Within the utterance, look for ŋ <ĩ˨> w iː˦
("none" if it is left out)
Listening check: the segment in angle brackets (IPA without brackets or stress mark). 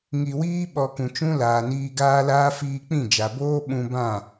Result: i˨